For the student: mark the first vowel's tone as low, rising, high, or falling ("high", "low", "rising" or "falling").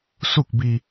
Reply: falling